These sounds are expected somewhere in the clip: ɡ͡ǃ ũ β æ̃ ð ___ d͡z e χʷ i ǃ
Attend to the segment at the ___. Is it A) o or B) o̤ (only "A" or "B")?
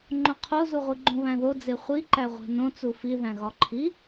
A